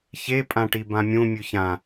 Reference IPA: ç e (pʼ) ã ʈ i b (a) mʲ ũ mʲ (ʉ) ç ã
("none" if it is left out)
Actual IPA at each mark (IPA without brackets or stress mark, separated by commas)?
pʼ, ã, ʉ